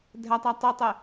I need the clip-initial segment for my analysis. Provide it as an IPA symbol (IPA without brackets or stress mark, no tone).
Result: dʱ